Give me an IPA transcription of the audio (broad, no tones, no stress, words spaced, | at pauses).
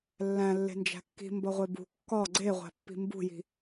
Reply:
lːæ̃lːe̤nd͡ʒæ̤ kːi̤ mbɒʁʷebṳ kːɒ ɡ͡ǀeʁʷæ̤pːi̤ mbṳji̤